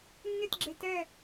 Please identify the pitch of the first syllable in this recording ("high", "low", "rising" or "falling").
falling